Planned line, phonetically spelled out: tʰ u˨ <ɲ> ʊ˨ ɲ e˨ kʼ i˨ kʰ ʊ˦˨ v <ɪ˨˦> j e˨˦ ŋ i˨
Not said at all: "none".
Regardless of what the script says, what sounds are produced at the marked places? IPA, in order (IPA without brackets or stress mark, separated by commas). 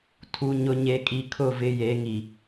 ɲ, ɪ˨˦